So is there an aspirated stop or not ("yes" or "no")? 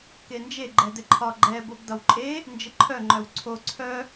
yes